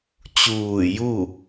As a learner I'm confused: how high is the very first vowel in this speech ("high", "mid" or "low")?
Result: high